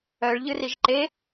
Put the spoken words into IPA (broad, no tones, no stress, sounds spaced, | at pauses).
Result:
œ ɭ ʎ ɨ r i ʒ ǃ e